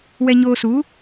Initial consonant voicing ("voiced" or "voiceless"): voiced